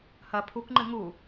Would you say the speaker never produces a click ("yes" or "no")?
no